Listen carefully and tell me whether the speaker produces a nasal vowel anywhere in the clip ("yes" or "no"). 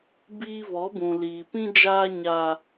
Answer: yes